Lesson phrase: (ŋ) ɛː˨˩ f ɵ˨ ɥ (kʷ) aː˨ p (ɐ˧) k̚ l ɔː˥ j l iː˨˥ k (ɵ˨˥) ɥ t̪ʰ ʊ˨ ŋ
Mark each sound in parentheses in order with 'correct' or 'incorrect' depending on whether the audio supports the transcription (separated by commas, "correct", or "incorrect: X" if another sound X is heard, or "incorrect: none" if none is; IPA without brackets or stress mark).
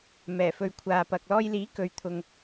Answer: incorrect: m, incorrect: kʷʰ, incorrect: ɐ˨, incorrect: ɵ˨˧